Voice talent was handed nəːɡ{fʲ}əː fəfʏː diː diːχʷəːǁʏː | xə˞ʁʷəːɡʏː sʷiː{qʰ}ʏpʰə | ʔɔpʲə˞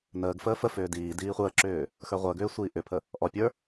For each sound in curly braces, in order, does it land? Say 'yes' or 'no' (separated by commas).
no, no